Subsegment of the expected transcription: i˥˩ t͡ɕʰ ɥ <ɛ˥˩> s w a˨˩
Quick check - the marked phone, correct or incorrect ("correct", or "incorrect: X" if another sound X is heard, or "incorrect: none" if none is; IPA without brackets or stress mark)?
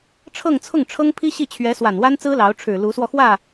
incorrect: ɛ˧˥